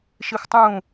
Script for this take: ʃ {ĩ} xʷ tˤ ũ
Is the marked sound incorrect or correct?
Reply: incorrect